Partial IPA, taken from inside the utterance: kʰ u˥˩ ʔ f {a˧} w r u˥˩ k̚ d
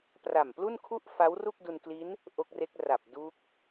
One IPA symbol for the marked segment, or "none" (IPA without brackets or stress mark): a˦˥